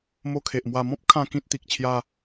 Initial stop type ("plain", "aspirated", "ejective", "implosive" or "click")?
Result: aspirated